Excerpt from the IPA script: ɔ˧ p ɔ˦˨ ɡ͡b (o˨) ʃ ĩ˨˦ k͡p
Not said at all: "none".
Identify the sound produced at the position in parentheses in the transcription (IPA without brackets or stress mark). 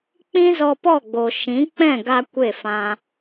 o˨